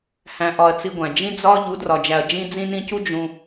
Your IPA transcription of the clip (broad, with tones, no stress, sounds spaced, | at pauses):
h æ̃˧ ʔ ɒ˧ ɐ̯ t͡s i˧ ɡʷ æ̃˨ d͡ʒ ĩ˦ d͡z ɒ˦ ʎ u˨˦ d r ɒ˨ d͡ʒ æ˨ ɐ̯ d͡ʒ ĩ˧ d͡z ĩ˧ n ĩ˧ c u˦ d͡ʒ ũ˦